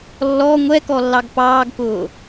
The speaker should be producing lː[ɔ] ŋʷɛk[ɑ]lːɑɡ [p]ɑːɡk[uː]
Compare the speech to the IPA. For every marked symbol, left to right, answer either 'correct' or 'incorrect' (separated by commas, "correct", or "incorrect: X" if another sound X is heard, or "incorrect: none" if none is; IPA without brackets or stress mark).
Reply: correct, incorrect: ɔ, correct, incorrect: ʊː